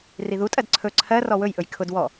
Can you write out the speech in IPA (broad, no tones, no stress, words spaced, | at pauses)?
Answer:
riðutʼɜd ǀʰɵ ǀʰɜrɔ wɵjʔɵj kʰʊd wɔ